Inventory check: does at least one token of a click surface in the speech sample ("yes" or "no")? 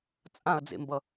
no